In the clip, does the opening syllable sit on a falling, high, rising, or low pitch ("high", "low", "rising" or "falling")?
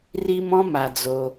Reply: high